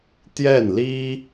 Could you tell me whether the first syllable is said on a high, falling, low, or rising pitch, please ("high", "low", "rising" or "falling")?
falling